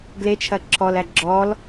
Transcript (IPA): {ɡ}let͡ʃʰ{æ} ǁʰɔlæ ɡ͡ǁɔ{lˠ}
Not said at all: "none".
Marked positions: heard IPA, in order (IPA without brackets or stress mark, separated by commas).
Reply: ɡ, ɐ, l